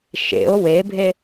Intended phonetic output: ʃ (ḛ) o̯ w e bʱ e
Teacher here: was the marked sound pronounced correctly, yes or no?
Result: yes